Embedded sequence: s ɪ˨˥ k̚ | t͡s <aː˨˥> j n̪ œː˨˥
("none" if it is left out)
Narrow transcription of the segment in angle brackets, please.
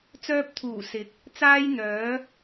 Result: aː˥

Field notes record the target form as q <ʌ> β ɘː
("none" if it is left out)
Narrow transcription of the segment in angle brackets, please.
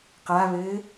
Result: a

